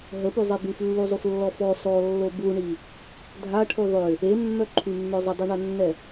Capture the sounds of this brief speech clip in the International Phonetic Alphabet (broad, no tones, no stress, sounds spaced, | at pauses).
ɦ ə p y zˤ e b y f lː u zˤ u f lː ɔ f ɔ s ɔ lː o b u ɳ i | dʱ a ʈʰ u ðˤ ø | e mː œ ǃʰ y mː œ zˤ ə dˤ i ɳ a nː ɛ